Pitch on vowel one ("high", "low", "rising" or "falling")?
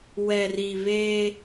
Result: low